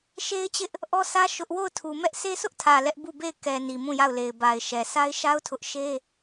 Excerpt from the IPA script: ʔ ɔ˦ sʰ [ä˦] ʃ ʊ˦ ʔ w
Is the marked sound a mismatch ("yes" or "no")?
no